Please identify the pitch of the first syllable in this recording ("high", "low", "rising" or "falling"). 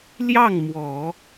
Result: falling